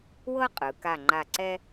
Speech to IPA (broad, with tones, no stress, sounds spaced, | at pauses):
w ɤ˥ qʼ ɯ˩˧ k a˧˩ ŋ͡ǃ a˧˩ ǀ ɛ˥